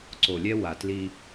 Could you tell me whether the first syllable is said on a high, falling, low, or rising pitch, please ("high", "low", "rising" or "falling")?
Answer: low